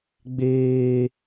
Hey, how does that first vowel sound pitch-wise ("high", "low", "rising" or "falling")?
high